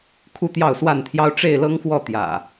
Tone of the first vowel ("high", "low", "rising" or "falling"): falling